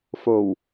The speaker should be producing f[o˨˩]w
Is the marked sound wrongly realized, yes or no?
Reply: no